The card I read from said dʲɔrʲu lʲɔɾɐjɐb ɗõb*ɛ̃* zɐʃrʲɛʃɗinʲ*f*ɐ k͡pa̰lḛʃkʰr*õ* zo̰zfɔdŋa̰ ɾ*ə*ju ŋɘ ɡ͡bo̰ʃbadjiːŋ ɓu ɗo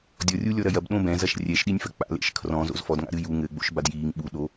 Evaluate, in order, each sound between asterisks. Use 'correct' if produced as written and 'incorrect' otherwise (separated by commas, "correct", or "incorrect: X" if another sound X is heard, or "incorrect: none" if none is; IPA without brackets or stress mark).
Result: correct, correct, incorrect: ɔ̃, incorrect: ɨ